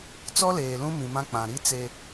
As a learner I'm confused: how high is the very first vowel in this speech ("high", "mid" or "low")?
mid